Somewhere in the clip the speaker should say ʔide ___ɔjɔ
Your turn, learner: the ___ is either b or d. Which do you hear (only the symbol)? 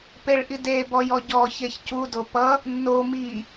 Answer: b